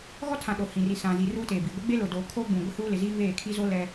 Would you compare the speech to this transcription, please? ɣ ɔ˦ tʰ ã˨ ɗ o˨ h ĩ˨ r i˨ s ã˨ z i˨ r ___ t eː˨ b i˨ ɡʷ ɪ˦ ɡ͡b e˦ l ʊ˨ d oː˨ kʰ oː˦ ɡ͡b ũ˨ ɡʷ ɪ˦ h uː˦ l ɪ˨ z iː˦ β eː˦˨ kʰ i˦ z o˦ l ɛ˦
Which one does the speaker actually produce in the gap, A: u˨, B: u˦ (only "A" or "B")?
B